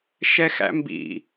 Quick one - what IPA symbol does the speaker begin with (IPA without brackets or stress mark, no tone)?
ʃ